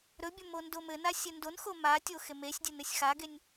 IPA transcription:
ɾɵbʲɵ mondomɘna sʲɘndonxo ma tʲoxemesʲdʲɘ nɘsʲxaɡenʲ

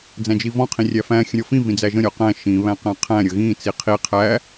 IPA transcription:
d͡zæ̃d͡ʒivɔ̃ qʰĩrʲæfæ̃ xʲə̃ɾʲɔfĩ vĩd͡zæʒə̃ ɾʲɔqæ̃ ʃĩ βæ̃qæ̃qʰæ̃ ɾʲəɣĩ t͡siqʰi qʰæ

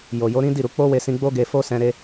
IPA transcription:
jo˨jo˨˦ɾĩ˦ di˦˨ɾu˧ k͡po˦we˧sĩ˧ ɡ͡bo˦ ɡe˧fo˦sɛ̃˧ɾe˧

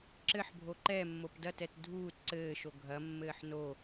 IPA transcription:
ǁɘħbʱo ǃɛmːop dɐtɛt dʱuːt ǀɘːʃo ɡʱɐmːɘːħ no

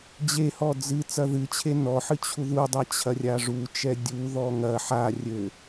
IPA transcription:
d͡ʑehɔ d͡zɨ t͡sɐðɨt͡ɕʰe nɔħɨ t͡ɕʰuðudˤa t͡ɕʰɐrʲaʐut͡ʃɛ dʲuðɔ ŋɐ ħa rʲɘ

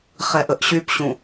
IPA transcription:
χɛʔəʔɕypɕũ

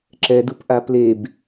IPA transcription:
ǁɛdupʔa pleb

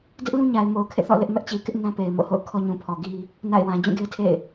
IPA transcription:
dɪ˦ʔlũ˦ɲa˨ɪ̯ mo˨ʊ̯kʰḛ˦˨θɔ̰˦˨ lɪ˦ʔmɛ˦ʔt͡ɕi˨ kɪ˦ʔ nã˦pe˨ɪ̯ mo̰˦˨ho̰˦˨ʊ̯ kʰɔ˦ ɲũ˨pʰɔ˨ ɡi˦ | na̰˦˨ɪ̯wã˨ d͡ʑũ˦˨ɡe˦ɪ̯tʰḛ˦˨ɪ̯

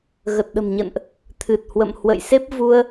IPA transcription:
ɣə˨˩t̚ɗə̤˨˩mɲə̰˧˨nʔ | t̪ʰɨ˨˩t̚hwə̰˧˨m hwə̰˧˨jse˦˥p̚ vu˧ə̯

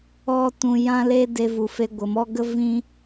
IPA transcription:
ɔ˦tũ˧ jã˦le˦de˧ vu˨fe˧ ɡʷə˨mɔ˦ɡə˦ vĩ˦

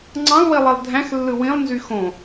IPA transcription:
ŋ͡ǀɑ̃lˠwilˠilˠ dʱæ̃xlːɯ wĩlˠnzy xõ

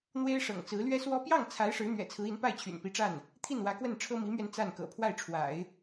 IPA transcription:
n̪we˥ɪ̯ʂɤ̰˨˩ŋt͡sɹ̩˧˥ lɥɛ˥swɔ˥ pjɑ˥˩ŋt͡sʰa˧˥ɪ̯ ʂɻ̩˧˥n̪ɥɛ̰˨˩t͡sʰɹ̩˧˥i˧˥n pa˥˩ɪ̯t͡ɕʰy̰˨˩npi˧˥ʈ͡ʂa˥˩n | t̪ʰi˥˩nwä˧˥kwə˥˩nʈ͡ʂʰɤ˥ mi˧˥mɥɛ˧n t͡sa˥˩nkɤ̰˨˩ pʰwa˥˩ɪ̯ʈ͡ʂʰwa̰˨˩˦ɪ̯

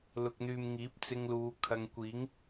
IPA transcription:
lʊ˨k̚n̪yː˨mŋiː˨˥p̚ t͡sɪ˧ŋluː˨˧ kʰɐ˨ŋkʷiː˨˥ŋ

